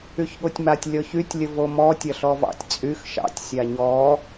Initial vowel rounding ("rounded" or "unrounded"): rounded